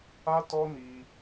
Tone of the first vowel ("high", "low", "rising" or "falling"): high